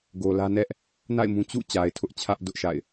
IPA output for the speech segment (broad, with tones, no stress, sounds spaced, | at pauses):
ɡ o˨ l ä˦ n ɛ˦ ʔ | n a̰˦˨ ɪ̯ m ũ˦ t͡ɕ ṵ˦˨ t͡ɕ a˨ ɪ̯ tʰ ʊ˦ ʔ t͡ɕʰ ä˦ ʔ d ʊ˦ ʔ ʃ a̰˦˨ ɪ̯